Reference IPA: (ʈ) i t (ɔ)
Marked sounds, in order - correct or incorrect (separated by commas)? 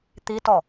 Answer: incorrect, correct